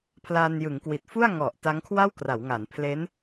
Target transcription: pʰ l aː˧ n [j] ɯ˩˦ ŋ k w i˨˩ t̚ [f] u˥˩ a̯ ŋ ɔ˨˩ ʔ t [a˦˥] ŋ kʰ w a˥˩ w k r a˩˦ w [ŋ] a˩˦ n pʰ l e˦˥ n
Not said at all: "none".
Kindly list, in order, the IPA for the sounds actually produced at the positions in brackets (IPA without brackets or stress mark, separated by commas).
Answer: j, f, a˦˥, ŋ